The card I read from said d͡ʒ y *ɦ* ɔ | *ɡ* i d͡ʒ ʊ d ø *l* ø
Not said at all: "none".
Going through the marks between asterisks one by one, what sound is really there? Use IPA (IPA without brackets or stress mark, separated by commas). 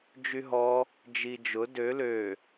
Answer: ɦ, d͡ʒ, l